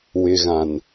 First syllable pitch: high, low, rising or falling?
low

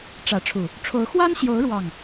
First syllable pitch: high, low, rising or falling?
rising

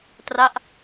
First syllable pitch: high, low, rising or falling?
falling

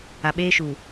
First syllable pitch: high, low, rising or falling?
low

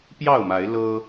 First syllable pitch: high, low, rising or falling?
falling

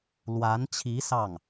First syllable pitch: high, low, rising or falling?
rising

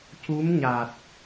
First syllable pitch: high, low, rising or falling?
rising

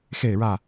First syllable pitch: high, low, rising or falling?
falling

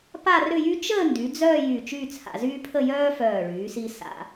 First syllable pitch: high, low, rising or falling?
falling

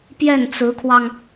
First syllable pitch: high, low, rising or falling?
falling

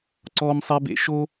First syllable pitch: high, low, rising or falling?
high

